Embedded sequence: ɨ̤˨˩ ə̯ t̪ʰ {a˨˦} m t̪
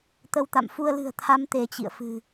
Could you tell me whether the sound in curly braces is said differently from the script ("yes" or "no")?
no